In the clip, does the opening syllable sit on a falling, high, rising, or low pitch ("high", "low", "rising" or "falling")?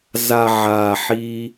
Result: low